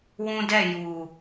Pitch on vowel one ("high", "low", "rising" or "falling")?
high